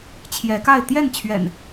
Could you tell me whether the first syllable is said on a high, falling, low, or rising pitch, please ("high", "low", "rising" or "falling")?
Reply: rising